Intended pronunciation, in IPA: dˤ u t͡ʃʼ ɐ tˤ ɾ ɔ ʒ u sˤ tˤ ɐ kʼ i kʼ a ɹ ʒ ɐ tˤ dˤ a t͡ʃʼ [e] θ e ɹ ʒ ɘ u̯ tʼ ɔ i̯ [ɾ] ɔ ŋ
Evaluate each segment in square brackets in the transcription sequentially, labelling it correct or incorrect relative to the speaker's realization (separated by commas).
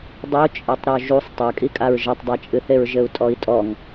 incorrect, incorrect